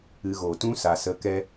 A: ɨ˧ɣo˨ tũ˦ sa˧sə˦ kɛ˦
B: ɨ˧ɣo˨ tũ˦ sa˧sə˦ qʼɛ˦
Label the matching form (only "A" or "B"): A